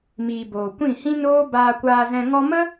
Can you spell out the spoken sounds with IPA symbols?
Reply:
m iː˨ b oː˨ kʷ ĩ˦˨ h ĩ˦ n oː˦ b aː˧ kʷ aː˧ z ɛ̃˧ ŋ ɔ˧ m ə˦

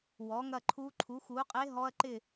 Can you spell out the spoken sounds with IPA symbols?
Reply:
w ɔ˨˥ ŋ ɐ˥˨ ǃʰ u˦˥ ǃʰ u˨˥ x u˨˥ qʼ e˦˥ ɦ ɔ˦˥ ɐ̯ ǃ ɪ˥˨

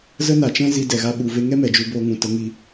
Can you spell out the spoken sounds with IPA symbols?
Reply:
z ə˦ n a˨ t͡ʃ ɛ̃˦ z i˧ d ɛ˨ ɣ a˧ ɓ u˨ v e˧ ŋ ɛ˦ m ɛ˨ d͡ʒ u˧ b o˧ ŋ ũ˨ t ə˨˦ ŋ i˧

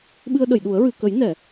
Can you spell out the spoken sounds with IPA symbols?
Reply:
ɓ ɨ˧ ə̯ ɗ ə˨˩˨ j ɗ u˨˩˦ ə̯ ɹ ɨ˨˩˨ k ə˨˩˦ j n ɛ˨˩˨

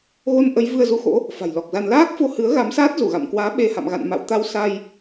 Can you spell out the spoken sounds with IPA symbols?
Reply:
ɣ o˧ n ʔ ə˨˦ j v ɨ˧ ə̯ z u˧ x o̰˧˥ | f a̤˨˩ j l ɔ˨˩ k̚ z a˧ n l aː˦˥ k̚ f o˧ h ɨ˨˦ ə̯ ɣ a˨˦ m s aː˦˥ t̚ z u˧˩ ɣ a̰˧˨ m k w aː˨˦ ɓ e˧ h a̰˧˨ m ɣ a̰˧˨ n m a̰˧˨ w t̪ a˧ w s a˧ j

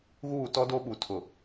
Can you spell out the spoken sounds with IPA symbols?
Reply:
ɣ uː˦˨ t ɔ˦ d o˦ ɓ u˨ tʰ ʊ˨

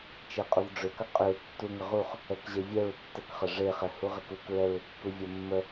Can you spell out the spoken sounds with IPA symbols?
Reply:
t͡ʃ e qʼ u v ɖ͡ʐ ʏ k ɐ qʼ ʏ ɹ tː u ŋ ʏ ʁ u χ | ɛ k ʑ e vʲ ɛ ɹ tː ə k χ ə ʐ e χ ɛ h u ʁ ɛ k u k ɹ ɛ ɹ ʏ kː u vʲ ɐ mː ə

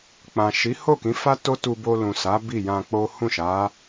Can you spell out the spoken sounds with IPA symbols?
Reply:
k͡p ã˨ ʃ i˨˦ h o˦˨ k ĩ˨˦ f a˦ t o˦ t u˧ b o˧ l ũ˨ s a˨˦ b i˦˨ j ã˧ k͡p o˦ h ũ˦˨ ʃ a˨˦

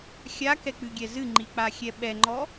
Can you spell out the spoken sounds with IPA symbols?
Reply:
xʲ a k ɛ k͡p ɨ ɡʲ ɛ z ɨ ŋ͡ǃ i k͡p a xʲ ɛ ɓ ɛ ŋ͡ǃ ɔ

